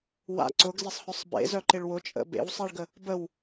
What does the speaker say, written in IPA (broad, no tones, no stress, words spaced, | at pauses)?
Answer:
wa̰ ǀʊɡzɪsˤhœsˤ bḛzœǃɪɭ wʊt͡ʃʼə̰ bḛwsˤiɭɡə | bəw